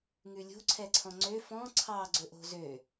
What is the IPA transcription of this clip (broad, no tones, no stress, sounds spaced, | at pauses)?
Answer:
ŋ ʉ lʲ o̤ ǀʰ ɛ ǀʰ ɔ̃ ŋ͡ǀ ø f ɔ̃ ǀʰ ɑ ɡ͡ǀ ɵ ʔ o̤ z ø